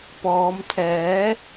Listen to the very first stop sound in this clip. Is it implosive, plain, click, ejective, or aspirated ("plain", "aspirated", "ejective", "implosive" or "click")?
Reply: plain